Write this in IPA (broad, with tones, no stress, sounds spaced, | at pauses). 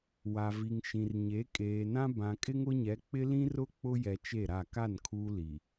w a˨ v i˨ ŋ ʃ ĩ˨ r ɲ e˨˦ kʼ eː˨ n ã˦ b ã˨ kʼ ɪ˦ ŋ ʊ˦ ɲ ɛ˨˦ k͡p ɪ˦ l ĩ˦ r ʊ˦ k͡p ʊ˦ j ɛ˨ t͡ʃ e˦˨ ɾ a˦˨ k a˦˨ n kʰ uː˦ l i˨